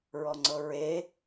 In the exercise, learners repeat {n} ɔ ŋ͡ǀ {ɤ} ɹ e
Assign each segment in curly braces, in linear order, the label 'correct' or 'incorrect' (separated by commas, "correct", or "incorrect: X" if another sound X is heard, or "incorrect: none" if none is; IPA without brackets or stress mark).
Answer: incorrect: ɹ, correct